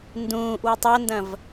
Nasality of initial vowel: nasal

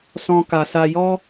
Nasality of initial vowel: nasal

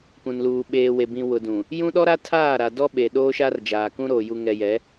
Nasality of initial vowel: nasal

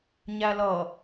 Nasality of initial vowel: oral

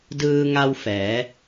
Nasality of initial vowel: oral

